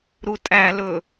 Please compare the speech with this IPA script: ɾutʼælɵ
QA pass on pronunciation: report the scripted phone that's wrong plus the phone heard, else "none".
none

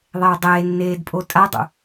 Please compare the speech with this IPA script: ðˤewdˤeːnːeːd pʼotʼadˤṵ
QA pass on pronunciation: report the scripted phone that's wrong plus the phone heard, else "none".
none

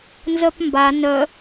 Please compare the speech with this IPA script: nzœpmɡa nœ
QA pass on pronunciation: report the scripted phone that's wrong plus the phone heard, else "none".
ɡ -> b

